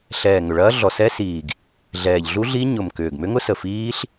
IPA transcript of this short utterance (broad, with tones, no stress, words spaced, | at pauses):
ɬɛː˨˩ ŋʏ˨˩ɭɐː˦˥ ɮɔ˨˩sɛ˦˥siː˨˩ɡ | ɮɛː˨˩ʎ ɮu˦˥ɮi˦˥ ɲʊ˨˩mkʏː˨˩ɡ mʏ˦˥ŋʊ˦˥sə˨˩ fiː˦˥ɬ